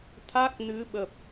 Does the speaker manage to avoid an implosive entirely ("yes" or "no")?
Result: no